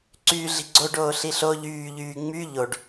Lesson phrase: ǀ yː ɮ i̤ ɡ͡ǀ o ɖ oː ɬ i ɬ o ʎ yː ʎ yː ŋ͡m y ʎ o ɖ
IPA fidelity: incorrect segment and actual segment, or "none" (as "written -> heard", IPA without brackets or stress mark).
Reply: none